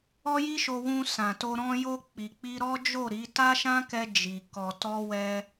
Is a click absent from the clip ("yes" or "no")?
yes